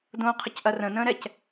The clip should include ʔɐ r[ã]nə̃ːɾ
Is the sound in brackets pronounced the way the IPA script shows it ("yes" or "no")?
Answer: no